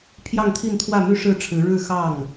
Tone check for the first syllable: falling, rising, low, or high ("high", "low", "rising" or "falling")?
falling